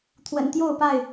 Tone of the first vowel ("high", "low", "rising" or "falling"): low